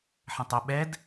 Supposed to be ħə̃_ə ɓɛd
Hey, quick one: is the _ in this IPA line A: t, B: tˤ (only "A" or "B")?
B